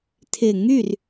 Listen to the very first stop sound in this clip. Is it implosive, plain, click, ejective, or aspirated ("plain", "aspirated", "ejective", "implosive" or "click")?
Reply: aspirated